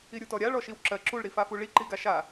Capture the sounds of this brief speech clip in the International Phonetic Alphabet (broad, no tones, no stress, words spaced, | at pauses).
iɾʲutɔɾʲa ɭɔʃiwǁɜ ǁuɭ ɾifafuɭi ǃiɡaʃa